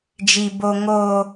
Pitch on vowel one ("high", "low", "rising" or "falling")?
low